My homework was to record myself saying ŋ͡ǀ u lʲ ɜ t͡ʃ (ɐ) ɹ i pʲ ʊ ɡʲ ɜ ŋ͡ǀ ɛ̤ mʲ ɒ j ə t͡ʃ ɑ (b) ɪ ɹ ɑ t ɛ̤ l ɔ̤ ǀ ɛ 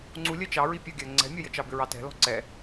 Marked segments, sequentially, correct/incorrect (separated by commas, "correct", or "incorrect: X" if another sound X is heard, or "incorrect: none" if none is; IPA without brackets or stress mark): incorrect: ɑ, correct